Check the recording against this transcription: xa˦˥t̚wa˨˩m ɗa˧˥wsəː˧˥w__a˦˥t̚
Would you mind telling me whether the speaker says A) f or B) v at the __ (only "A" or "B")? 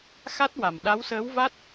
B